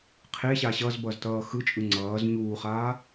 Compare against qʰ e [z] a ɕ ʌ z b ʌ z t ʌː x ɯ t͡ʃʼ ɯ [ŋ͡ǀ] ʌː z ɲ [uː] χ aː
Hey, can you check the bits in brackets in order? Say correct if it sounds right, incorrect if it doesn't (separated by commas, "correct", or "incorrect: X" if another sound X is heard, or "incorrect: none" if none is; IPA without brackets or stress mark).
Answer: incorrect: ɕ, correct, correct